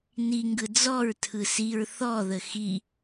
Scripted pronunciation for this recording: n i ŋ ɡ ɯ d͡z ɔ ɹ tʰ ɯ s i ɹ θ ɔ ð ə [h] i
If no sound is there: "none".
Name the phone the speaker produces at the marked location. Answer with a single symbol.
x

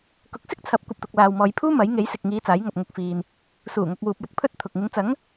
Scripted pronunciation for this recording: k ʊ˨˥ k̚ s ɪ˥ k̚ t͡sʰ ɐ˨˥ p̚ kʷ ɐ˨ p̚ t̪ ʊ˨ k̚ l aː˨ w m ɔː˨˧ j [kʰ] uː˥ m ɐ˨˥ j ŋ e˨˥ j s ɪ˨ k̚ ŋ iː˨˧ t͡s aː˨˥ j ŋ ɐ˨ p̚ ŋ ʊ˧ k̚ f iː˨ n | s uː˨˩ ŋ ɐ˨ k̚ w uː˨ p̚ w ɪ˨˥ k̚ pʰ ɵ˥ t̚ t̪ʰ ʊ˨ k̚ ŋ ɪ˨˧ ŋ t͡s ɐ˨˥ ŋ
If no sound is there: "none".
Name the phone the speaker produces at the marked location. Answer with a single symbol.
pʰ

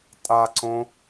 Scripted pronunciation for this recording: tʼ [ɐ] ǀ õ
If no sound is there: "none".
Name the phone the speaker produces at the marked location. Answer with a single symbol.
a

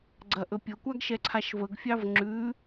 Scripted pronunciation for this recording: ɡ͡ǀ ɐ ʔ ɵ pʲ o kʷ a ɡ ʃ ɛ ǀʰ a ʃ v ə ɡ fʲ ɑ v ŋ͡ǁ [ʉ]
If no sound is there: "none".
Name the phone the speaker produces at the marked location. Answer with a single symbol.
ʉ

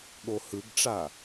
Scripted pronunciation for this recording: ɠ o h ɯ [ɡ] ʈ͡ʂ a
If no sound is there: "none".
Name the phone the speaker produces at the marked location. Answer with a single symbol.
ɡ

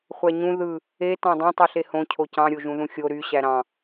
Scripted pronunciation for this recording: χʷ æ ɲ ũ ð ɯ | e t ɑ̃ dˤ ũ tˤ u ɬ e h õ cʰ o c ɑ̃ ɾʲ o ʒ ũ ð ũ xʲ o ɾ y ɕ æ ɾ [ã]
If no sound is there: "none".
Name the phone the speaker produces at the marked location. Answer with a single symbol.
ɑ̃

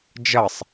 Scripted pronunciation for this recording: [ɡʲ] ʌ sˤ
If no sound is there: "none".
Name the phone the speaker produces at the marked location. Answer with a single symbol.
d͡ʒ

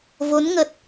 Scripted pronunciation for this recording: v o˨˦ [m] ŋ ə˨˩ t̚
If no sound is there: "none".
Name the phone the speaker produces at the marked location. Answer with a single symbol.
n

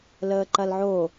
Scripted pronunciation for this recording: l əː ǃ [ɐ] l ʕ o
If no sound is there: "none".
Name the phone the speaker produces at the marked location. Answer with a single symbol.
ɐ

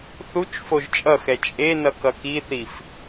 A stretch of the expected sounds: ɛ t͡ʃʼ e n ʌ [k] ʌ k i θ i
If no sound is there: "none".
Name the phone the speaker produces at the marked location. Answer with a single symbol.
k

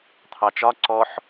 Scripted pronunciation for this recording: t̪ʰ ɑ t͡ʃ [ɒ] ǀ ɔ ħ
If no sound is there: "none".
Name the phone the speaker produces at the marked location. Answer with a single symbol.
ɒ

